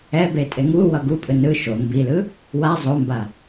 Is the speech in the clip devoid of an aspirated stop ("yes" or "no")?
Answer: yes